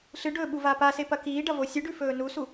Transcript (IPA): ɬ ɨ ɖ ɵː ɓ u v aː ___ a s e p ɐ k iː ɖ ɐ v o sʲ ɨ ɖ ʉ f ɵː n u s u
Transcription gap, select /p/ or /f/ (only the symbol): p